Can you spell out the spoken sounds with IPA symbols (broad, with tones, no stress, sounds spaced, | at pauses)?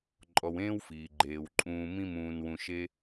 ǃʼ ɔ˨ w ẽː˥ w f iː˩ ɡ͡ǃ eː˩ w ǃʼ ũː˨ m ĩ˦ m ũː˨ n w ũ˨ ʃ e˦